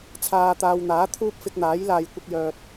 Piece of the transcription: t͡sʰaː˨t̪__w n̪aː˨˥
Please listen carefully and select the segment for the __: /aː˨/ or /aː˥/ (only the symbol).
aː˨